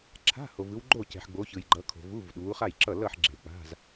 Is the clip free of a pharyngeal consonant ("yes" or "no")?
no